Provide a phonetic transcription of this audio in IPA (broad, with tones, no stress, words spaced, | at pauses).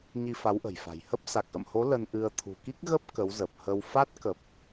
ɲi˧fa˨˦wʔə̤˨˩jfa̤˨˩j hə˦˥p̚ sa˨˩k̚ʔə̰˧˨mho˨˦ lə˧n ʔɨ˧ə̯ t̪ʰṳ˨˩ki˦˥k̚ ɣə˦˥p̚ kə˨˦wzə˨˩p̚hə˧w fa˦˥t̚kə˨˩p̚